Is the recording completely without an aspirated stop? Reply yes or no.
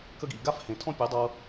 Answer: no